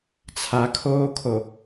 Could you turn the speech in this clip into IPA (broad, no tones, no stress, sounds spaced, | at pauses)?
t͡sʰ a kʰ oː kʰ o